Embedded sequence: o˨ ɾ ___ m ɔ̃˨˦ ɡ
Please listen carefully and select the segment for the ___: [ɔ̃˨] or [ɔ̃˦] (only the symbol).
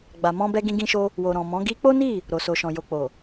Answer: ɔ̃˨